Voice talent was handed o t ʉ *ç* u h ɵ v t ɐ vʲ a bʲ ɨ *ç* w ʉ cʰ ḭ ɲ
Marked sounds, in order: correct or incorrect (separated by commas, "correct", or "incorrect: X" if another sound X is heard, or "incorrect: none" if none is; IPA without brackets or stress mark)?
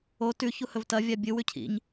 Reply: correct, incorrect: none